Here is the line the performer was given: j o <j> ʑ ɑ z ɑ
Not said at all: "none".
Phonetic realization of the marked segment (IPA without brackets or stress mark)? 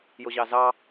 none